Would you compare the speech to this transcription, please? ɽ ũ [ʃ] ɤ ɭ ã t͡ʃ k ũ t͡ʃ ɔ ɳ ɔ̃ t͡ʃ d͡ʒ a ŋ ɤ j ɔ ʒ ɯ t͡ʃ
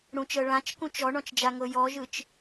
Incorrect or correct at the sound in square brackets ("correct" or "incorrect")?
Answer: incorrect